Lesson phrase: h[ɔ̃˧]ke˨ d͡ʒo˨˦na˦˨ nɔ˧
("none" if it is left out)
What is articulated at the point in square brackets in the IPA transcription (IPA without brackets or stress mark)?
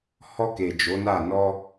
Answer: ɔ˧